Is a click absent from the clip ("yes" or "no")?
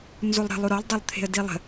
yes